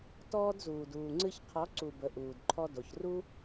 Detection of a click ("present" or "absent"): present